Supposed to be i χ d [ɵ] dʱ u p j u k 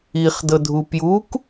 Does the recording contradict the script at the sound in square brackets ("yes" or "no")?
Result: yes